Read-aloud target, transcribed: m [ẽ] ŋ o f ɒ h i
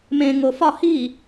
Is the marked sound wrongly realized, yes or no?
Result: no